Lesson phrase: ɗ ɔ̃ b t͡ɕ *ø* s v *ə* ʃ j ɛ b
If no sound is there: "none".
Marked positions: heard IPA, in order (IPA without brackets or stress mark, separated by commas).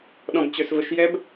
ø, ə